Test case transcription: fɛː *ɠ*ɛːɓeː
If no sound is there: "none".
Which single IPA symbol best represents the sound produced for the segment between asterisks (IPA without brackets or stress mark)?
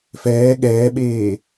ɠ